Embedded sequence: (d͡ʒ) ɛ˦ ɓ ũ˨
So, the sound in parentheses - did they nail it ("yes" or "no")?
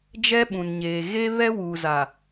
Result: yes